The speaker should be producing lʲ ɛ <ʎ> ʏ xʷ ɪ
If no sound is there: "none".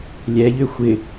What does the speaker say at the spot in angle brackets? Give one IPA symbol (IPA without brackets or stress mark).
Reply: ʎ